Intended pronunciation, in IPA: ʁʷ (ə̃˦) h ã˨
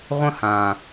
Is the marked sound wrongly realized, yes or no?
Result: no